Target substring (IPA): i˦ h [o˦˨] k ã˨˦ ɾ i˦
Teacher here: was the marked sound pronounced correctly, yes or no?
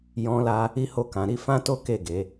yes